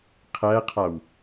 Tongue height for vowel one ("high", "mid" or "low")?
low